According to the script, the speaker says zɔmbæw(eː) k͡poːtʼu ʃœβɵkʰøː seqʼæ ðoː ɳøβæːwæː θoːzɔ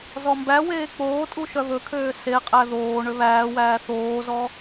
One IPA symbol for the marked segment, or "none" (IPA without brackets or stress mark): eː